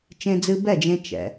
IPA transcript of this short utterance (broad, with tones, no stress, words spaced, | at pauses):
t͡ʃẽ˧d͡zɨ˧ bɛ˥˩d͡ʒẽ˧ t͡ʃɛ̰˩